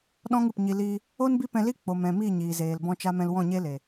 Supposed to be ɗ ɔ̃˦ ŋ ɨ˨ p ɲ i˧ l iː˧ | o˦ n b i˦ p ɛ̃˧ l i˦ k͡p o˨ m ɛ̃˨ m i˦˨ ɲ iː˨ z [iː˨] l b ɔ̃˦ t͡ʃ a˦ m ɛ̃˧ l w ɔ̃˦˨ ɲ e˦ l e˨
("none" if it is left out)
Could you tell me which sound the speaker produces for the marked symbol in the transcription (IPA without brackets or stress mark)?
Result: eː˨